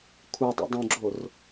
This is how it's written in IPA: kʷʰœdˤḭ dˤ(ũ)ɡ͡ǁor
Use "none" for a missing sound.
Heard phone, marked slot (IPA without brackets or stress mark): ũ